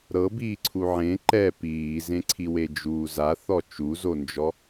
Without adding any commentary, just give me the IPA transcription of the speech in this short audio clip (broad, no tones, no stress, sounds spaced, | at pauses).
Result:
ɾ ɤ b iː ǀʰ u ʕ ẽ ǃ ɛ p iː z ẽ ǀʰ i w e d͡ʒ uː z a θ ɔ t͡ʃ u z o n d͡ʒ ɔ